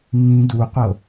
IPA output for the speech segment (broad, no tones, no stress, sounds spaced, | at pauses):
ŋ ĩ d u qʷ ɤ